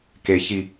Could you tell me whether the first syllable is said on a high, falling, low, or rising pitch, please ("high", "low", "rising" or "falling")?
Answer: low